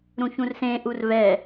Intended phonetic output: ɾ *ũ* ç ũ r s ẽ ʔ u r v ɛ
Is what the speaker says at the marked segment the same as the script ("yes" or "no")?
yes